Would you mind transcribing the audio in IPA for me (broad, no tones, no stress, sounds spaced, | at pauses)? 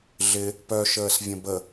ɮ ɪ | p œ ʃ əː s vʲ ə̃ b ə